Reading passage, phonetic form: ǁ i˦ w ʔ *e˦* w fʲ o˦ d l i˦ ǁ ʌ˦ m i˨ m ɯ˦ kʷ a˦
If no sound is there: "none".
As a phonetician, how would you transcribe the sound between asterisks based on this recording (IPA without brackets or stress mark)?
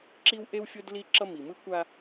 e˦